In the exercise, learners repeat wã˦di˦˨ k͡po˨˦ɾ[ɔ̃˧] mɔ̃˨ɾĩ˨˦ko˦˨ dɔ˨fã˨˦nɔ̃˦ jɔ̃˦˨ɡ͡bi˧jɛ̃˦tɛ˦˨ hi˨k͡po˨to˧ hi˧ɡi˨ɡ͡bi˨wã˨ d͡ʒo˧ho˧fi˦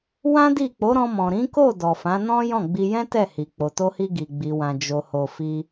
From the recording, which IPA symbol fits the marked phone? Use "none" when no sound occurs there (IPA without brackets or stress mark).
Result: ɔ̃˧